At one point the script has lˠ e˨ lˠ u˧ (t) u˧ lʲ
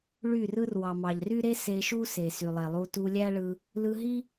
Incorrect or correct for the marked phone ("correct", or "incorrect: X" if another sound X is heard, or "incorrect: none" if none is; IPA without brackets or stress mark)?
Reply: correct